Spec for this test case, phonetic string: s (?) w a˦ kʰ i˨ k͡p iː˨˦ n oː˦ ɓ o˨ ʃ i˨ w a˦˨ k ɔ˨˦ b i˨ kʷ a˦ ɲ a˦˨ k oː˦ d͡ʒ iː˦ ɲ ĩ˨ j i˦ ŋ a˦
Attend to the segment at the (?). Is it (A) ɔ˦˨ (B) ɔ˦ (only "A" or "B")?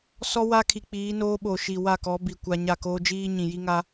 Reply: B